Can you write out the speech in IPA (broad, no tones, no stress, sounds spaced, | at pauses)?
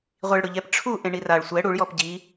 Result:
ʁʷ i ɭ ɽ ʊ ʎ ɛ p ʈ͡ʂʰ u ʔ ẽ ɳ i r a ɭ sʷ ɛ ɽ u ɭ j ɔ p ɟ i